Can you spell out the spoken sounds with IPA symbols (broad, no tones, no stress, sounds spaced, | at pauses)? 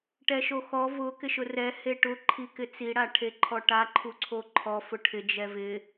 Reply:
ʈ ɛ ʃ o x ɔ v ʊ k ɪ ʃ ʊ r ɛ h e ʈ ʊ ǃʰ i k ɪ t͡s i ɽ a ʈʰ e ǃʰ ɔ ʈ a ǃʰ u ǀʰ o ǃʰ ɔ f ʊ ʈʰ ɪ d͡ʒ ɛ v ɪ